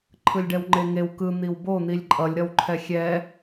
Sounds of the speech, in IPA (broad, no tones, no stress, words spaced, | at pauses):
ǃʰɯlʲɖɛwŋ͡ǃeŋew kɯ n̪iwbo n̪ilʲǃʼʌlʲ ɾʌwǃʰɛxʲɛ